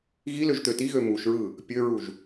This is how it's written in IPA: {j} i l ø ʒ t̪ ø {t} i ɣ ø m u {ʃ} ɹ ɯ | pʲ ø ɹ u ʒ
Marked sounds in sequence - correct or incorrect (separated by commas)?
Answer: incorrect, correct, correct